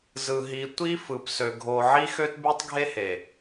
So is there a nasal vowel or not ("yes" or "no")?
no